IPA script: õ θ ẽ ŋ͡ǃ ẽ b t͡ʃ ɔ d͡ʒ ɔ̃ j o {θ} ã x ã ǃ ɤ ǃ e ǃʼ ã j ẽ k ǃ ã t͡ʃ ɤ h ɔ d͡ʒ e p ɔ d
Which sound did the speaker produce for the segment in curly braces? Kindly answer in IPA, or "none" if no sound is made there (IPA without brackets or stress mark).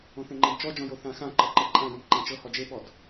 θ